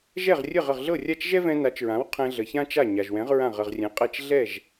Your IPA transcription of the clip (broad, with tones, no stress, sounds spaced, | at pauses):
ʒ ɛ˥˩ ʁ rʲ ə˥˩ ʁ ə˥˩ ʁ ɮ ɤ˥˩ rʲ a˥˩ t͡ʃ ʒ ɛ˥ v ɛ̃˧ n a˩˥ t͡ʃ ɹ ã˩˥ w qʰ ɛ̃˧ ɮ ə˩ ç ã˥ t͡ʃ a˥˩ ɲ a˩ ʒ w ɛ̃˩˥ ʁ ɹ ã˥˩ ʁ ə˥˩ ʁ rʲ ɛ̃˩˥ qʼ ɛ˥˩ t͡ʃ ɮ ɛ˥˩ ʒ